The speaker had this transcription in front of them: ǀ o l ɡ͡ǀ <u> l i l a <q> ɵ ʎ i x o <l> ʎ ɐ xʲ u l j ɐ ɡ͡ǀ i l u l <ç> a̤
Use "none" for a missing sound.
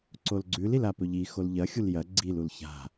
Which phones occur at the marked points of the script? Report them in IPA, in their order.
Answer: ʉ, p, l, ç

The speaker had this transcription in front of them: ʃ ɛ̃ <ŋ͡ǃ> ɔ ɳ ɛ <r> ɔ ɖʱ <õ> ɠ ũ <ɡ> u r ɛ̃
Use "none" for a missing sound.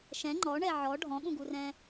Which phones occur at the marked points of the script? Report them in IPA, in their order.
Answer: ŋ͡ǃ, ʕ, ɔ̃, ɡ

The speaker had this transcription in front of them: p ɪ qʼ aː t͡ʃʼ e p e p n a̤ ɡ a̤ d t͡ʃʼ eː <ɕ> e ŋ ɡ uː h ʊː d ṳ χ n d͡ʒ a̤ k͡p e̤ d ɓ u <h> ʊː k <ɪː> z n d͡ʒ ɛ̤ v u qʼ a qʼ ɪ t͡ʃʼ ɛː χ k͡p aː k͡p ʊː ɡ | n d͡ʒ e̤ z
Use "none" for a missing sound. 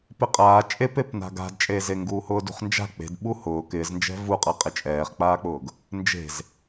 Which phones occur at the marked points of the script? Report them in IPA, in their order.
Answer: z, h, ɪː

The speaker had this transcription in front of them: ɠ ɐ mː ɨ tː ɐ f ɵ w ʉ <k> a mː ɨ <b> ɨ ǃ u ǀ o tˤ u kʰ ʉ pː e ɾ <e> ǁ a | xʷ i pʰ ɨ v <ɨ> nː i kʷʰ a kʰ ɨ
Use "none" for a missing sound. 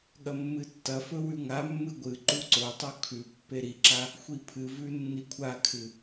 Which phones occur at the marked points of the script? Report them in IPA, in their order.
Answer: ŋ, ɡʷ, i, ʉ

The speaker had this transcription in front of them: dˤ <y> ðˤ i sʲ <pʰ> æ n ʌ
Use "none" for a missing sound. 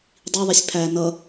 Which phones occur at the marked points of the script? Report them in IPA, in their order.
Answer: i, pʰ

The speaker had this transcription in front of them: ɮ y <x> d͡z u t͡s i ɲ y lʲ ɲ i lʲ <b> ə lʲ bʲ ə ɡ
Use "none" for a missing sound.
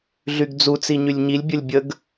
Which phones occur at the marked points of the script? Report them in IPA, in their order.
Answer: ɡ, bʲ

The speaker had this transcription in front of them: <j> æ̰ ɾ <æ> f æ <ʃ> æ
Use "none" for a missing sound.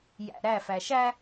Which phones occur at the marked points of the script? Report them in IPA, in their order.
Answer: j, æ, ʃ

